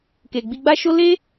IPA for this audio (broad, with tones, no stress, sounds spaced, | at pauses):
k e˨ ɡ͡b i˧ ɡ͡b a˦ ʃ o˦ l e˦